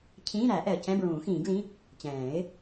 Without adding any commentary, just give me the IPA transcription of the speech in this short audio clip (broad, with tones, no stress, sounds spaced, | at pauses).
cʰ ĩː˧˥˧ ɾ æ˨˩˦ ʔ ɛ˨ ə̯ c ɛ̃˧˥˧ b ɹ ũː˨˩˦ x ĩː˨˩˦ ɡ l ĩ˧˥˧ | t͡ɕ ɛ̃ː˨˩˦ ɪ̯